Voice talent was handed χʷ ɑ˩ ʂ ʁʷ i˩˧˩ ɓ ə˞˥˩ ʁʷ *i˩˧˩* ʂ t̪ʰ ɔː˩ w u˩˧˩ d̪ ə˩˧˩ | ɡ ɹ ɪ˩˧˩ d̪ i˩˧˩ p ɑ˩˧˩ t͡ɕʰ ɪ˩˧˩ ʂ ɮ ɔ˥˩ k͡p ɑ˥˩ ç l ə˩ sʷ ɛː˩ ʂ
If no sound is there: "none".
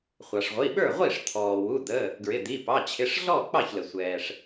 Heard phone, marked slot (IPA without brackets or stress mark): i˥˩